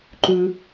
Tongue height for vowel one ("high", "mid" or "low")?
high